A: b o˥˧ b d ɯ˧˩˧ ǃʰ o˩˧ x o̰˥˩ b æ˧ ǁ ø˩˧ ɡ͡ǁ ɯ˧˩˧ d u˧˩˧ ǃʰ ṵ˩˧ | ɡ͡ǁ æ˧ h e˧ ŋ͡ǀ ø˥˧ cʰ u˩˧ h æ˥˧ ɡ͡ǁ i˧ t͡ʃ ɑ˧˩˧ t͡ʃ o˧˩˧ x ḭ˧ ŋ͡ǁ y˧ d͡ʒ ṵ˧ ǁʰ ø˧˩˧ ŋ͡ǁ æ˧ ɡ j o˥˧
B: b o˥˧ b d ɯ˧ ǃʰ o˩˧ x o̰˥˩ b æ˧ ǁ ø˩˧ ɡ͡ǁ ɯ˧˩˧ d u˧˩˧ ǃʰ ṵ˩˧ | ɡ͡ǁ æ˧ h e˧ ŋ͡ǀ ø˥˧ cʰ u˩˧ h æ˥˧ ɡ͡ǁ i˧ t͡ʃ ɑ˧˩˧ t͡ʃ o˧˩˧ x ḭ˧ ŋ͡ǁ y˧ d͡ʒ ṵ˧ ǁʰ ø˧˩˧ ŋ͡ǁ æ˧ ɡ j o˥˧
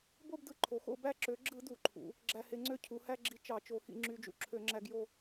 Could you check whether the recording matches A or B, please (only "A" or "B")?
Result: B